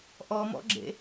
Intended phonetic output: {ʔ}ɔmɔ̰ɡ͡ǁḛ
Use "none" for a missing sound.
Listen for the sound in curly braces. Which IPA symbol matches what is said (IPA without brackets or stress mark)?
ʔ